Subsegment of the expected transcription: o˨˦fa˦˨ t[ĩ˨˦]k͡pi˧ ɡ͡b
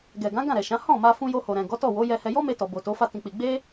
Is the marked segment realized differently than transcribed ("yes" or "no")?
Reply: yes